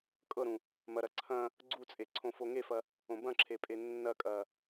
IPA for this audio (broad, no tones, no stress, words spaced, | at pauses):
kʼɤɾũ | mɐɾɐ ǀʰɐ̃ | ɡ͡ǀut͡sʼe ǀʰõfoŋefɐ | õbɐ̃ǁʰe pʼenːɐkʼɐ